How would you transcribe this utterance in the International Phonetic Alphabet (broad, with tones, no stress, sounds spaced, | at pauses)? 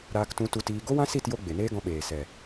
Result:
ɾ aː˧ k t ũ˧ t u˧ t iː˧ ɡ o˦ w ã˦ s i˦˨ t j o˧ ɡ͡b e˨ n eː˦ ɡ ɔ̃˧ ɓ eː˨ s ɛ˨